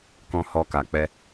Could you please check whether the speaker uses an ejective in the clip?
no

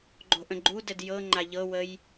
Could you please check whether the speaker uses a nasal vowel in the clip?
yes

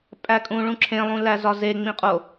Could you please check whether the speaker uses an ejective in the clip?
yes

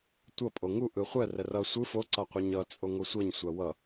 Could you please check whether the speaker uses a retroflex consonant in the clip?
no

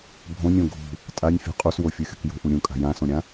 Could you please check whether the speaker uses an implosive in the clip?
no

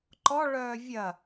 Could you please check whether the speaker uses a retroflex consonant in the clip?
yes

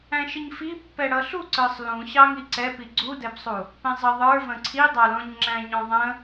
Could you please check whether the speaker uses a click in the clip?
yes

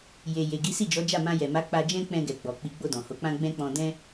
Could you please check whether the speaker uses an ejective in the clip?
no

